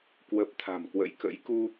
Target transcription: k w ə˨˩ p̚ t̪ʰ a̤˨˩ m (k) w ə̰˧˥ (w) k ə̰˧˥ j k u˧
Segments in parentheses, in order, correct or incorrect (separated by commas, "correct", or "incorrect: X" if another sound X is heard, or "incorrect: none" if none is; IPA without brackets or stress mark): correct, incorrect: j